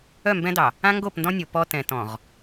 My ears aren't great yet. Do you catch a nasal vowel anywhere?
yes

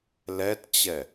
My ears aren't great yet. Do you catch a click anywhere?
no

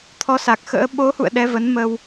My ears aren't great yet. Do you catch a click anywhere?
no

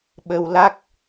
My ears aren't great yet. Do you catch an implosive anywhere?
yes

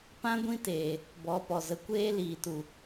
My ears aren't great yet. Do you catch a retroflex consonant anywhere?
no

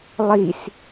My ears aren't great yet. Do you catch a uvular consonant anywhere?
no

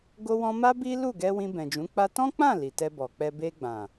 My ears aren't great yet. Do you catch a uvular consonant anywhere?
no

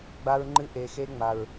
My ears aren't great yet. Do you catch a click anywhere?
yes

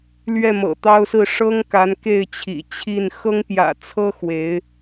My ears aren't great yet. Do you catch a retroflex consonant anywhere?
yes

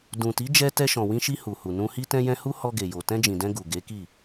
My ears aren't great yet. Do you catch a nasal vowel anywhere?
yes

